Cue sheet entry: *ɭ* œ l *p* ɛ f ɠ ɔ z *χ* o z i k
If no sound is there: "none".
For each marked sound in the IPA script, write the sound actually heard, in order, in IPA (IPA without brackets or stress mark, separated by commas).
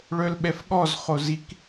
ɭ, ɓ, χ